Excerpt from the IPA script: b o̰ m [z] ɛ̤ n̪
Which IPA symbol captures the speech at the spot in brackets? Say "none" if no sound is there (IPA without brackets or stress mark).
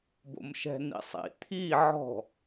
ʃ